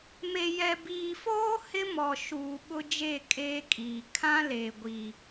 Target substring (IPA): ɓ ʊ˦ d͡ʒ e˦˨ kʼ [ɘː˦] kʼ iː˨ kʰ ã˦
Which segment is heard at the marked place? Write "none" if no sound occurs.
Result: eː˦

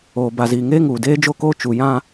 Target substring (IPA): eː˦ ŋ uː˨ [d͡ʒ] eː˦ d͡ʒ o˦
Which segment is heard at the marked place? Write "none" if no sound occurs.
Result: d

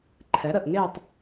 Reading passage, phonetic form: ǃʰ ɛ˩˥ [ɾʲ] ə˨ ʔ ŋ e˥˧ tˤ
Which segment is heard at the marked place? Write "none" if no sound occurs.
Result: ɾ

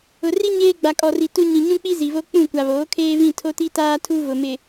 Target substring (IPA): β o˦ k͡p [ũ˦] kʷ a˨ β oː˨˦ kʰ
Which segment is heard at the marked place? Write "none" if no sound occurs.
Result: ũ˦˨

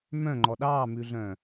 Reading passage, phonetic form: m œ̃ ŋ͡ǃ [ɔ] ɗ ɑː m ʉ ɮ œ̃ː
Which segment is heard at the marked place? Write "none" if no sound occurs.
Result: ɔ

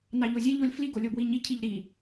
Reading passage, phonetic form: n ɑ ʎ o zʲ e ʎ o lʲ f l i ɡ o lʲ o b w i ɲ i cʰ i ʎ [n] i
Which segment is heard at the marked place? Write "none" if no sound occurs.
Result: ɾ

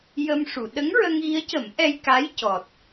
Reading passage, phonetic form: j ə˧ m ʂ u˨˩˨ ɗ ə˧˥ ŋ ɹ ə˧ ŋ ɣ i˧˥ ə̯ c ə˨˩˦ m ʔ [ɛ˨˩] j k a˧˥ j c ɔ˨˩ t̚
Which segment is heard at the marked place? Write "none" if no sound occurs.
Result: ɛ˧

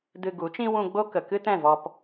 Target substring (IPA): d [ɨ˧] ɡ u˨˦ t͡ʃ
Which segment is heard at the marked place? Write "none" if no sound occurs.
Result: ɨ˧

